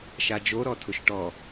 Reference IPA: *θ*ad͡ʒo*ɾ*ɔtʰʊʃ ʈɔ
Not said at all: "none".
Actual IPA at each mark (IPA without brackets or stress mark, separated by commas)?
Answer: ʃ, ɾ